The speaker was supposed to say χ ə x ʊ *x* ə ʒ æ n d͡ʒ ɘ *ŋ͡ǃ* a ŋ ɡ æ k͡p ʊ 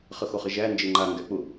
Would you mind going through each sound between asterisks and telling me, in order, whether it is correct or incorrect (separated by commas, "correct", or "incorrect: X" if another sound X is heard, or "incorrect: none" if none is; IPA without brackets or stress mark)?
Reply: incorrect: χ, correct